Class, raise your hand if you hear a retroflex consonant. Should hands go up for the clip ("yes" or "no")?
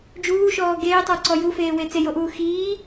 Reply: no